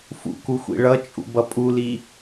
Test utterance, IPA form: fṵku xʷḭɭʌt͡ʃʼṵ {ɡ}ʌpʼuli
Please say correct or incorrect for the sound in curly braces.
incorrect